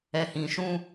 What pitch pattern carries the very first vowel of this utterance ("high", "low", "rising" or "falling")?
low